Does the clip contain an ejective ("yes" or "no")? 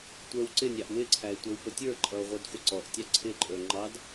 yes